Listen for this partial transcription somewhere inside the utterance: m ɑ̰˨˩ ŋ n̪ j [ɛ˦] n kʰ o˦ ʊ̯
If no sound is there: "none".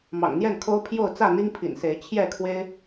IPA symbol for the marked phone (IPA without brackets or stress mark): ɛ˥˨